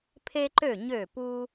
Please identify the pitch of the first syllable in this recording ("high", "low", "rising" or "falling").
high